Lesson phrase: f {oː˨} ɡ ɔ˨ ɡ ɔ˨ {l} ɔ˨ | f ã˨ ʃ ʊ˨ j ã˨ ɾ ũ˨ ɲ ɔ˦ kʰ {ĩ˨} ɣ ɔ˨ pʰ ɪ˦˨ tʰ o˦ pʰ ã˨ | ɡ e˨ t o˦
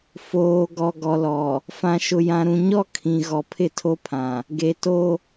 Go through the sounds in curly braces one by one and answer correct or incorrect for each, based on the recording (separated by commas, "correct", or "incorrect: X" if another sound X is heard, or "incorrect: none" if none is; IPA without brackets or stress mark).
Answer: correct, correct, correct